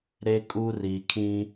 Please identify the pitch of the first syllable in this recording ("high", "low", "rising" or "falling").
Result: high